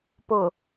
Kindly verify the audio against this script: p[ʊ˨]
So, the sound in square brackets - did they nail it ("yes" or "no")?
yes